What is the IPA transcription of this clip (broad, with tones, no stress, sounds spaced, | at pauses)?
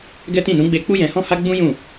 ɡ ɛ˦ t ĩ˦˨ n ũ˨˦ ɡ͡b e˧ k͡p u˦ j ɛ̃˧ h ɔ̃˦ h a˦ ɡ͡b ũ˦ j ũ˦˨